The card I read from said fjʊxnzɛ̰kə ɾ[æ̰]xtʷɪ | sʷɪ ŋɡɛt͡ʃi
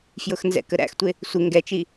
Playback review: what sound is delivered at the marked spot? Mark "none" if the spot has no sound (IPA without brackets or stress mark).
æ̰